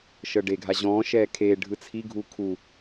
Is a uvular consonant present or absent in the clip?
absent